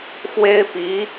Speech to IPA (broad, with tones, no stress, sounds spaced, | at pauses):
x w e˥ ɪ̯ p i˧˥